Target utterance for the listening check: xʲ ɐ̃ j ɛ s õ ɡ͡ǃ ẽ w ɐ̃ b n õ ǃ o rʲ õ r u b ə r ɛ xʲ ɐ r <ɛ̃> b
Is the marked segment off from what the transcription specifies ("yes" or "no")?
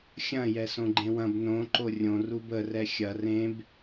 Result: yes